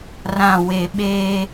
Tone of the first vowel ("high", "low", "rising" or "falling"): low